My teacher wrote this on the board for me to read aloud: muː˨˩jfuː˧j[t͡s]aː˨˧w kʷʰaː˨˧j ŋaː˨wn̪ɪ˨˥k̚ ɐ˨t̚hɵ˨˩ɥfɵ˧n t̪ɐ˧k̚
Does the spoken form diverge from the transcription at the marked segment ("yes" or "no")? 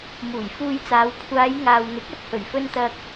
no